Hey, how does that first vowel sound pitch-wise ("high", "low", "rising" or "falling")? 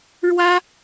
high